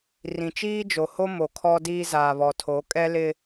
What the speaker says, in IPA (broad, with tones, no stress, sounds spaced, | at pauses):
r ĩ˨ t͡ʃ iː˦ d͡ʒ o˨ h o˦ m o˨ kʰ ɔ˦ d iː˦ z aː˨ β ɔ˨ tʰ o˨˦ kʼ ɛ˦ l ɪ˦